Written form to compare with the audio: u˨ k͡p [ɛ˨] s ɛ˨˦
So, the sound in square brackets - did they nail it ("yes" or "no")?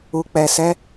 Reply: yes